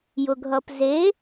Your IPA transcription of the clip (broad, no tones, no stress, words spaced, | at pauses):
jʊɡʱʌpze